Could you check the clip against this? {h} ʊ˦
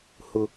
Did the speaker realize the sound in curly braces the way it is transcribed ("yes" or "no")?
yes